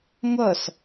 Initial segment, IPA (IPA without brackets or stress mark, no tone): ŋʷ